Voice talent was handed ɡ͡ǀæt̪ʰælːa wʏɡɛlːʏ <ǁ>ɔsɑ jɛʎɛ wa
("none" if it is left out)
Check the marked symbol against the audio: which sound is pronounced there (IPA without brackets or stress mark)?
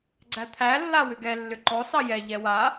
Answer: ǃ